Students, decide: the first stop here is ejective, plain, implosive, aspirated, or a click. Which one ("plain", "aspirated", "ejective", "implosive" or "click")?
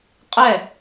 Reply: ejective